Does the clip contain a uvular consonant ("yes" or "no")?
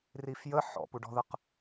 yes